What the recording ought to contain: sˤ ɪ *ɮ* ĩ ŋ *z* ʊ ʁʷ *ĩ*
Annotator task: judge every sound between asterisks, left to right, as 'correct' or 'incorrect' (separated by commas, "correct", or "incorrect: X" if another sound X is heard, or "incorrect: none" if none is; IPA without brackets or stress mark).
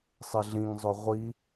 correct, incorrect: zˤ, incorrect: i